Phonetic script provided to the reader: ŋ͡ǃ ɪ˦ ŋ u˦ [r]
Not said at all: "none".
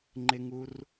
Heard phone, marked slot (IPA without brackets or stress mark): r